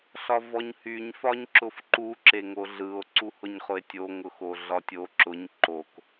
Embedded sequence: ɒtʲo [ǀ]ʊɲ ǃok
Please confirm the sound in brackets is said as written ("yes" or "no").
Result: no